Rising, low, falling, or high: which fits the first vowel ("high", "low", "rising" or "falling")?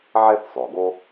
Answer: high